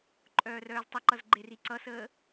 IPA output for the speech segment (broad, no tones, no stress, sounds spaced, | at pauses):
ǃʼ œː r œː z tˤ ə ǃ ʌ z ɡ͡ǃ e r i ǀ ʌ s əː